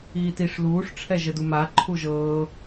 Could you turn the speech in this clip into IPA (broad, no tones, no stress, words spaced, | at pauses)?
iːtiʂ luːʂ ʈ͡ʂʰɛʒəduma ǃʰuʒɤː